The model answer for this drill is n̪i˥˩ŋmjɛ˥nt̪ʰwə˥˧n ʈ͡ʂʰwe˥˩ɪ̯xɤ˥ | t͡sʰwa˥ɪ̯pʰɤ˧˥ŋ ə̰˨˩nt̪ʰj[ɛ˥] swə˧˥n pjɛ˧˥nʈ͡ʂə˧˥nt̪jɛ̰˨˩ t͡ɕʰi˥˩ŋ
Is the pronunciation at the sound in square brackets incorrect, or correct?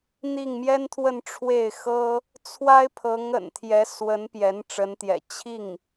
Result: incorrect